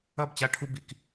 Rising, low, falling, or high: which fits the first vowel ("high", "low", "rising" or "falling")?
falling